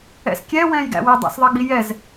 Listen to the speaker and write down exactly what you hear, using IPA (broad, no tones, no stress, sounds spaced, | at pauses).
ɛ̰ s kʲ ɛ w ɛ̃ː j ɡ æ̰ w ɪ dˤ æ̰ s ðˤ ɜ ɡ͡b i j ɛ z